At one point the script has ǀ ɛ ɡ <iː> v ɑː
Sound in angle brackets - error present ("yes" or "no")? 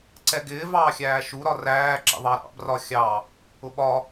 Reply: yes